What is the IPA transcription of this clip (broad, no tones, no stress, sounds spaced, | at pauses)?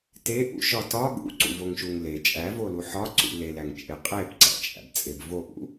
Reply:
t e ʔ ṵ ʃ ɒ t ɒ ɠ ṵ ǀ ṵ v o ŋ ʃ u ŋ l e t͡ʃʼ æ v o l u ħ ɒ ǀ ṵ l e l æ ŋ t͡ʃʼ e qʼ e b ǀ æ̰ t͡ʃʼ æ̰ b t͡sʼ e b v o ʔ ṵ